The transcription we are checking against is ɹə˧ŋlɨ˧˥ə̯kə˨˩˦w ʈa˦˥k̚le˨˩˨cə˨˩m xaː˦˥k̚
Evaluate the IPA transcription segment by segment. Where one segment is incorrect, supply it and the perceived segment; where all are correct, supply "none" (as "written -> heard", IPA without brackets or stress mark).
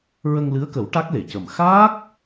none